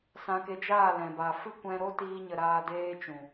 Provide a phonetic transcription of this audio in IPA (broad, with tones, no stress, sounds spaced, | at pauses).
s ã˧ k e˧ d͡ʒ aː˦˨ l ɛ̃˨ b a˨ f ɨ˦ kʷ ɛ̃˧ ɾ o˦ t iː˧ ɲ ə˨ ɾ aː˧ d eː˦ t͡ʃ ũ˨